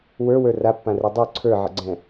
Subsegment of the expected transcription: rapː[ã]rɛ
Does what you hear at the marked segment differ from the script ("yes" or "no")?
no